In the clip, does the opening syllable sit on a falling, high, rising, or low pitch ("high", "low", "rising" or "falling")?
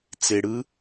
low